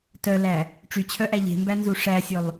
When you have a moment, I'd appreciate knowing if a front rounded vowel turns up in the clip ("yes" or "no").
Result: yes